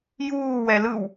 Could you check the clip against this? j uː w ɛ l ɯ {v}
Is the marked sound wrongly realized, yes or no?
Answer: yes